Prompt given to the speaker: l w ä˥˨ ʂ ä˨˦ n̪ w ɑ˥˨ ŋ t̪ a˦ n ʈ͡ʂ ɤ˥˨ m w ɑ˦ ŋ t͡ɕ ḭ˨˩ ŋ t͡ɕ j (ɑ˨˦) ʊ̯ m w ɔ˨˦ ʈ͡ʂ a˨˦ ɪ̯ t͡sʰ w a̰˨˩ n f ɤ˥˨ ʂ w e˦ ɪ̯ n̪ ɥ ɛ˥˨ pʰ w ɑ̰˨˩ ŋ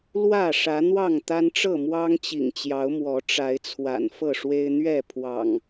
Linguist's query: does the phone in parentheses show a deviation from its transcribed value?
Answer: no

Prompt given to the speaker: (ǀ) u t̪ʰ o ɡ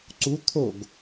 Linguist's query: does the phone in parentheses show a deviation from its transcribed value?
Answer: no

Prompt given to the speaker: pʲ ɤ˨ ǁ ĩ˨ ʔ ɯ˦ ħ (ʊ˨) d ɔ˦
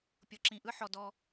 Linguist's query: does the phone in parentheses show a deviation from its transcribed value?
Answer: yes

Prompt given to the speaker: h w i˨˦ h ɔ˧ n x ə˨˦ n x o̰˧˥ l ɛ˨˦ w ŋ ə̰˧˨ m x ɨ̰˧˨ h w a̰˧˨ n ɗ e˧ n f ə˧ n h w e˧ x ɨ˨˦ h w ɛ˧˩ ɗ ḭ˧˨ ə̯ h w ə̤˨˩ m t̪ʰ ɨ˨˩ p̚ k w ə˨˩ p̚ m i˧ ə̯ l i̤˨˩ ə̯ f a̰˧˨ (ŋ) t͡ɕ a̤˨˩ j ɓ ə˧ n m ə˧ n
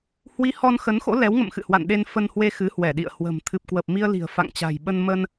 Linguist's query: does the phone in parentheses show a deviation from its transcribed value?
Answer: no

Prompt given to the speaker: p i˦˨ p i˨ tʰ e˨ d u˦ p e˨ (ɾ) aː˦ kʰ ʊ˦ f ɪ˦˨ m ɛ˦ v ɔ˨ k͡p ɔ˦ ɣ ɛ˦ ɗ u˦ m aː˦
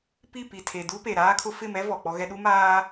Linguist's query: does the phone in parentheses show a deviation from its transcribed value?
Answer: no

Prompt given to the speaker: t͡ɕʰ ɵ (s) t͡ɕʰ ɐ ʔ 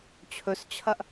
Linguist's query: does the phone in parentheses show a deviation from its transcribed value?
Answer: no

